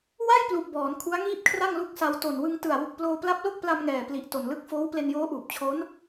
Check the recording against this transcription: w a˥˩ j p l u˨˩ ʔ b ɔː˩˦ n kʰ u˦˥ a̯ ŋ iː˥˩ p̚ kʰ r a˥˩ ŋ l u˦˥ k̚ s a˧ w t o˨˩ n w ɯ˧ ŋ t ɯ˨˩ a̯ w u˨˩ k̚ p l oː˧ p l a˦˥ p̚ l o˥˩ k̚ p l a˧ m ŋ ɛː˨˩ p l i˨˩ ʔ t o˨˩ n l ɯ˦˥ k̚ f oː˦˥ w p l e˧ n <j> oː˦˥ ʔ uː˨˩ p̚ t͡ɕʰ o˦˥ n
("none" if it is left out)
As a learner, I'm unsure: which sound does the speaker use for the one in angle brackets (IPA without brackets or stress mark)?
j